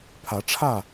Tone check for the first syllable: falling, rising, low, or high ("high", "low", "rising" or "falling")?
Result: rising